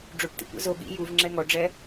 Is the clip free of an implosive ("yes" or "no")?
no